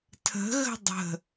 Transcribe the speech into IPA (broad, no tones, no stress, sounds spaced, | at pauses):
tʰ ə̤ ɣ ə̤ dˤ ə̤